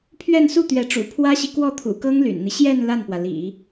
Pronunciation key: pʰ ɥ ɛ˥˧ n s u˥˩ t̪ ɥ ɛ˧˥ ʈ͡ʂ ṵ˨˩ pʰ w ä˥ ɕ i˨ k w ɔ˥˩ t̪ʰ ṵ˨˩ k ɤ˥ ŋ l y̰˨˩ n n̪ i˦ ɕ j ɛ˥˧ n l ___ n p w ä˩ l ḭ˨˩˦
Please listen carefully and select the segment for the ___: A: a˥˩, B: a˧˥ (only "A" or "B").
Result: A